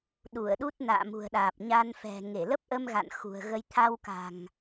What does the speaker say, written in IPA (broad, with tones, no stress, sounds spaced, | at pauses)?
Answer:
ɗ u˧˩ ə̯ ɗ u˦˥ t̚ n a̰ː˧˨ m ṳ˨˩ ə̯ ɗ aː˨˩ p̚ ɲ a˧ n f ɛ̤˨˩ ŋ e˧˩ l ə˦˥ p̚ ʔ ə˧ m ɣ a̰˧˨ n x ṳ˨˩ ə̯ ɣ ə˧ j t̪ʰ a˧ w k a̤˨˩ ŋ